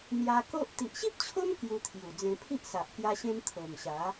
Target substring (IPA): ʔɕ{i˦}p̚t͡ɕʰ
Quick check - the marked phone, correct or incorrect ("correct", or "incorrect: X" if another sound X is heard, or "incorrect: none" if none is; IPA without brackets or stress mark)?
correct